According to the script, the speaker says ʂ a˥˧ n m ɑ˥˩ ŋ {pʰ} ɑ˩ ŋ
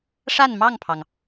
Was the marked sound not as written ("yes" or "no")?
no